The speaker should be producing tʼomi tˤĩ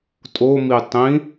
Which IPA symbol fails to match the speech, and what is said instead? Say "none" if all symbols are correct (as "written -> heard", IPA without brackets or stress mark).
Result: none